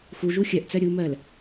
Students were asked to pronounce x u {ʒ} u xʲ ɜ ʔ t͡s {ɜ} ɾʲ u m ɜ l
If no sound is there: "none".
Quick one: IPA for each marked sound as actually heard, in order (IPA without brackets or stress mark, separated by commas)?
ʒ, ɜ